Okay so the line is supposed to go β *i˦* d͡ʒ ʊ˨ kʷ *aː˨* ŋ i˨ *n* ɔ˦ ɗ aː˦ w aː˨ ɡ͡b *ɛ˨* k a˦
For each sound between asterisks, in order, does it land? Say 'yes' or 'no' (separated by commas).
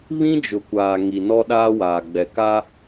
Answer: no, yes, yes, yes